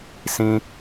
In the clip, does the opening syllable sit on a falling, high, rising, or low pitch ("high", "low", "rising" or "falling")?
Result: high